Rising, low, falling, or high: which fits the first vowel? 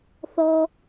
low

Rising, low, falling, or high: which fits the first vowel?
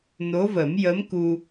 rising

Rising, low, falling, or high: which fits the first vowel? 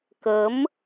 rising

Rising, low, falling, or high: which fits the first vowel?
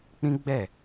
high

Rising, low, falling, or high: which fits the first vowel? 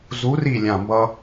rising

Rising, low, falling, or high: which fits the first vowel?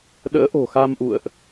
rising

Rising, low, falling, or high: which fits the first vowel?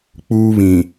high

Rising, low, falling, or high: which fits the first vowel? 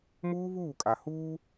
high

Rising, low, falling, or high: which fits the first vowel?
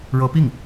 rising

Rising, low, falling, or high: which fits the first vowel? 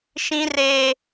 high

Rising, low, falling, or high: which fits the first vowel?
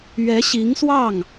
rising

